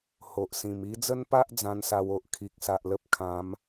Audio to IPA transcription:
h o˨ ʔ s ĩ˨˩ m i˧ d͡z ə˦ n p a˦ ʔ d͡z ã˦ n s a˧ w o˨ ʔ kʰ i˨ k̚ s a˨ ʔ l ə˦ p̚ kʰ ã˨˦ m

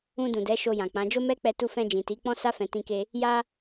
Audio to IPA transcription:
ũ˧ d ũ˨ d ɛ˨˦ ʃ o˧ j ã˨ k͡p ã˨˦ d͡ʒ o˦ m ɛ˦ k͡p ɛ˧ t u˧ f ɛ̃˧ d͡ʒ ĩ˨ t i˨˦ k͡p ɔ̃˦ s a˦ f ɛ̃˧ t ĩ˦ k e˦ | j a˧

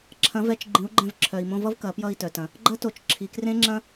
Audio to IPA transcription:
ǁʰ ɐ̃˩˥ v ɛ˩˥ t͡ʃ ɡ͡ǃ ĩ˩˥ u̯ ɡ͡ǃ ɛ̃˧ v ǁʰ œ˩ i̯ m õ˧ v ʌ˥ v k ɐ˩˥ p j ʌ˥˩ i̯ t œ˩ t ɐ̃˩ | ɡ͡ǃ ɐ˥ t o˩˥ t͡ʃ ǁʰ i˩ k r ẽ˥ ŋ͡ǁ ɐ̃˥

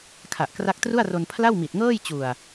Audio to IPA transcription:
kʰ a˨˩ ʔ k r a˦˥ k̚ t r u˥˩ a̯ r o˧ n pʰ l a˥˩ w m i˨˩ t̚ ŋ ɤː˥˩ j t͡ɕ u˨˩ a̯

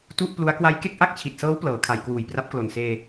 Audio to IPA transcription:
t u˥˩ ʔ p l u˦˥ a̯ k w a˦˥ j k e˥˩ k̚ ʔ a˥˩ k̚ t͡ɕʰ i˨˩ t̚ s ɤː˦˥ w p l ɤː˩˦ kʰ a˩˦ j k w uː˨˩ j p r a˦˥ p̚ k l o˨˩ n s eː˧

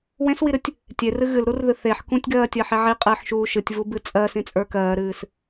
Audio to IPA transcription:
w ẽ s w i ɾ ɨ tʲ | tʲ e r ɨ ɣ ɨ l ɾ u r ð ɨ θ e ħ k ũ tʲ ɡ ɜː tʲ ɜ ħ i ʕ i qʼ ɨː ħ ʃ uː ʃ ɨ tʲ v u b ɨ t͡sʼ ɜ s ĩ t͡sʼ ə˞ k ɜː ɾ ɨː s

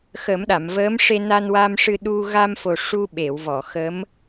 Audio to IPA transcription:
x ə˨˩˦ m ɗ a˨˩˨ m v əː˧˥ m ʂ e˧ n a˧ n w a˧ m ʂ ɨ˧ ɗ u˧ ɣ a˧ m f o˨˩ ʂ u˧ ɓ e˨˩˨ w v ɔ˨˩˨ x ə˧˥ m

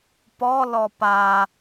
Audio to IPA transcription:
p ɔ l ɔ p a

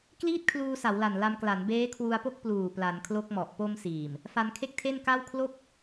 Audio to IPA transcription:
k l iː˥˩ t̚ kʰ l uː˧ s a˩˦ w l a˨˩ n l a˧ m k l a˩˦ n b eː˦˥ kʰ w u˧ a̯ p o˥˩ k̚ p l uː˨˩ p l a˩˦ n kʰ l o˦˥ k̚ m ɔ˨˩ ʔ p o˧ m s iː˨˩ m | f a˧ n kʰ e˥˩ k̚ tʰ e˥˩ n k a˥˩ w kʰ l o˥˩ k̚

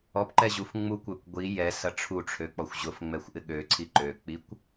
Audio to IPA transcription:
ɔ p ǃ ɛ ʑ u f ŋ͡m u kʷ ø kʷ ɡʷ i j ɛ s ɐ ʈ͡ʂʰ u ʈ͡ʂʰ ø k͡p ɔ xʷ ʑ ʊ f ŋ͡m ɛ xʷ ʔ ɪ ɠ ø ǀʰ i ǃ ø k͡p i kʷ

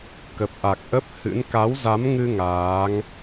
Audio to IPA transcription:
k ə˨˩ p̚ ʔ a˨˩ k̚ ʔ ə˦˥ p̚ h ɨ̰˧˥ n k a˨˦ w z a˨˦ m ŋ ɨ˧ ŋ aː˨˦ ŋ

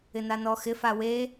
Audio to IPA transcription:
ɪ n a n ɔ x ɪ f a w e

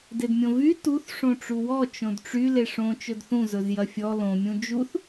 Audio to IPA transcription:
d e d mʲ õ v y t u θ ʂ õ ʈ͡ʂ u w ɔ t͡ʃ õ d ʈ͡ʂ y l e ʂ õ t͡ʃ ɵ d θ ũ z ɵ z j ɐ fʲ ɔ l õ mʲ ũ d͡ʒ u θ

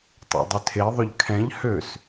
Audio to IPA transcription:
tˤ ḛ dˤ ʏ tʰ e ðˤ ʏ ʎ kʰ ɛ̃ ʎ h ø s

